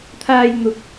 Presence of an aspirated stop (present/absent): present